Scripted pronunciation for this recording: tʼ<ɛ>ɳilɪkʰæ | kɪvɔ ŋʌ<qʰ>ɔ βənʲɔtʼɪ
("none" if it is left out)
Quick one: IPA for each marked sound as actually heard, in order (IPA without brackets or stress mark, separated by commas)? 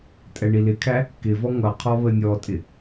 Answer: ɛ, qʰ